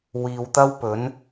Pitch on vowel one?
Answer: low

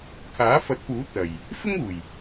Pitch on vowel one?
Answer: rising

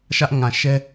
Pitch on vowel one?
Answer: high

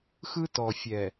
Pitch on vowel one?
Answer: high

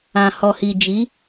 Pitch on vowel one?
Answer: low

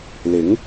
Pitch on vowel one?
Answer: rising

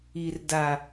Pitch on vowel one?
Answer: high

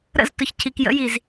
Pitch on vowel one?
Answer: falling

